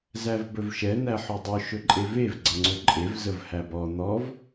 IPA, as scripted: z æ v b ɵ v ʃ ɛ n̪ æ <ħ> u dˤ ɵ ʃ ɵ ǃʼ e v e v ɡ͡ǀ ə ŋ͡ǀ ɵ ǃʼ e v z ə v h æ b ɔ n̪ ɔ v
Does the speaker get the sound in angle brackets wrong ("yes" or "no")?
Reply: no